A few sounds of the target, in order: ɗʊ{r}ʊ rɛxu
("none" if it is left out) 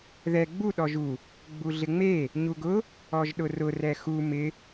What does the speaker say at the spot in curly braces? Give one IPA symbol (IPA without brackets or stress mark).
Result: r